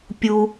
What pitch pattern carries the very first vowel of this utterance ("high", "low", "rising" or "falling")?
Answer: high